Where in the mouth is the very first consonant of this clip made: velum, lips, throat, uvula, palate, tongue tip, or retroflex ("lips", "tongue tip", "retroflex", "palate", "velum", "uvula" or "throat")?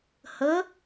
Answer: throat